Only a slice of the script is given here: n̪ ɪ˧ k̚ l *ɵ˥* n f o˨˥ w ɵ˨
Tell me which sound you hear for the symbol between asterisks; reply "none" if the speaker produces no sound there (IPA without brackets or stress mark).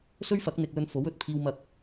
ɵ˧